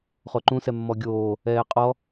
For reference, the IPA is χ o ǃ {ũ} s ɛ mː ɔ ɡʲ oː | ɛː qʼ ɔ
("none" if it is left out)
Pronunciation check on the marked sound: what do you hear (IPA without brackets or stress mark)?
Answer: ũ